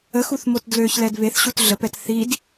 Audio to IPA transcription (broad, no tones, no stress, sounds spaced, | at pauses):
ə x u θ m o t d l ø ç l ɛ d β e θ ɕ u t ɮ ə p ɛ t θ i d